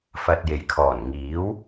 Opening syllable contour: low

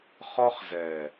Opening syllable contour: high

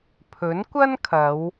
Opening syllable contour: rising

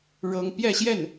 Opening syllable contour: high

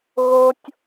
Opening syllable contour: high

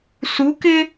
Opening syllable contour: rising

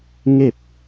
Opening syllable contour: falling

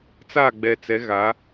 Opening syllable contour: falling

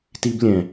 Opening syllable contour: high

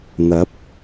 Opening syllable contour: rising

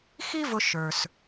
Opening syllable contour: high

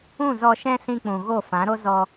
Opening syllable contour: falling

